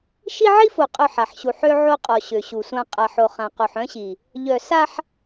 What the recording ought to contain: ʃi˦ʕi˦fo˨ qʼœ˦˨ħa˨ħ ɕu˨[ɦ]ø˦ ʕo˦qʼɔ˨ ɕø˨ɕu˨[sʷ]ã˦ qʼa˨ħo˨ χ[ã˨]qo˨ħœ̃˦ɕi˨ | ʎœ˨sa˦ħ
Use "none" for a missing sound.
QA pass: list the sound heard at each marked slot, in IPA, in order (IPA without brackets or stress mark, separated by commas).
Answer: ħ, sʷ, ã˨